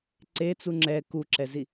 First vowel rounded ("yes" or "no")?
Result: no